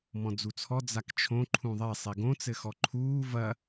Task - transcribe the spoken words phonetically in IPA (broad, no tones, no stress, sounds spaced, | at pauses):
m ɔ̃ d͡z u t͡sʰ ɔ d͡z a k t͡ʃʰ õ ǃʰ ũ ðˤ ɛ sˤ i ɡ õ t͡s ɘ x ɔ ǃʰ uː v ɐ